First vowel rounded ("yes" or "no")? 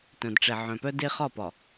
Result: yes